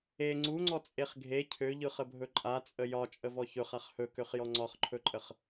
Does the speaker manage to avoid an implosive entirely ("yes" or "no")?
yes